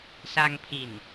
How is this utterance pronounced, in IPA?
s a˧ ŋ pʰ i˨˩ n

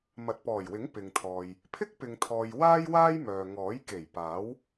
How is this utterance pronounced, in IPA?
m ɐ˨ t̚ p ɔː˨˩ j w ɪ˨˥ ŋ p ɪ˨ ŋ t̪ʰ ɔː˨ j | pʰ ɪ˥ k̚ p ɪ˨ ŋ t̪ʰ ɔː˨ j w aː˥ j w aː˥ j m œː˨ ŋ ɔː˨˥ j k e˨˩ j p aː˨˥ w

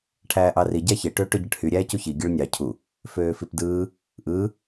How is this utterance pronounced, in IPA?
ʈʰ æː ʔ ɑ r i ɟ æ ç e ʈ øː ʈ ø ɟ ɯ ʈ h y ɾʲ æː c u ç i ɡʲ ɯ ɭ nʲ ɑ cʰ u | f øː f i p d ɯː | ʔ ɯː

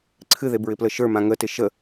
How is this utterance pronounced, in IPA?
ǀʰ ɨ ð e b ɹ ɪ p l ə ʃ ə˞ m ã ŋ ə t ɪ ʃ ə

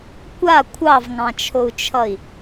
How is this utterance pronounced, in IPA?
kʷ a kʷʰ ɑ v ŋ ɑ̃ t͡ʃʰ o u̯ t͡ʃʰ ʌ i̯

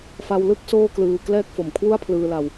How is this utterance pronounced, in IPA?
f a˧ w l ɯ˥˩ k̚ s oː˥˩ k l ɯː˧ k l ɛː˦˥ k̚ f o˨˩ m kʰ w u˥˩ a̯ pʰ l ɯː˧ l a˧ w

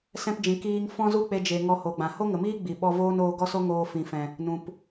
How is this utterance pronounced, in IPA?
s ɛ̃˧ p d͡ʒ ĩ˨ k iː˧ ŋ f ɔ̃˦ z u˦ k͡p e˧ d͡ʒ e˨ ŋ ɔ˧ h o˨ ɡ͡b ã˨ h o˦ ŋ ə˨ m iː˦ ɡ͡b i˨ ɓ ɔ˧ v oː˦ n oː˧ ɡ ɔ˦ s o˦ ŋ oː˧ f ĩ˨ f ɛ̃˨ | n ũ˨ p

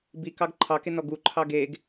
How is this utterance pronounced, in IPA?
b i k ɑ ɡ ǃʰ ɑ k e n ɔ ɡ u ǃʰ ɑ ɡ e ɡ

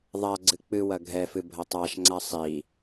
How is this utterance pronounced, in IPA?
ðˤ a ɡ͡ǀ ɨ k͡p ɨ w ɐ ɡʱ ɛ f ɨ bʱ ɐ tˤ a ʃ ŋ͡ǀ a sˤ i

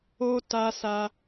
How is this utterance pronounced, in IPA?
o˦ t a˦ s a˦

